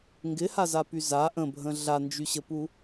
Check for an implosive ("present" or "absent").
absent